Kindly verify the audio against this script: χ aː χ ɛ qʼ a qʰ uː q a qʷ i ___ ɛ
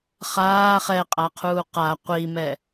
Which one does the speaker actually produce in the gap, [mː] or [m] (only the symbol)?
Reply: m